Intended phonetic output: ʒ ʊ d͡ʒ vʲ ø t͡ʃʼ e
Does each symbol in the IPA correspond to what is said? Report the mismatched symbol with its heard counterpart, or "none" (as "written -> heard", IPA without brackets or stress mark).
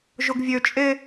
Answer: d͡ʒ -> ɡ